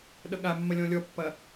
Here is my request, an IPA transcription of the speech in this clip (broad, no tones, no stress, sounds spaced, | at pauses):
ɗ ʌ ɠ a mː ɐ lʲ ɔ̃ lʲ ɔ pː ɐ